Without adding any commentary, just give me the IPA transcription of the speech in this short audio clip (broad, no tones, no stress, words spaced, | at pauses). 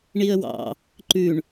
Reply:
ɳiə̯wɑ̰ | ǃʉɳ